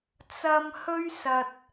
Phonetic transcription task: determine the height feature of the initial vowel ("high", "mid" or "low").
low